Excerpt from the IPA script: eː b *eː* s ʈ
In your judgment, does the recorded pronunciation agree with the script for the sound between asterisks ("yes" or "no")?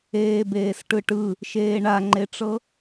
yes